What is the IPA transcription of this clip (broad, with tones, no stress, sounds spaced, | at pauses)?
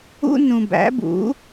ṵ˥ n ũ˧ b æ̰˩˥ b ṵ˩˥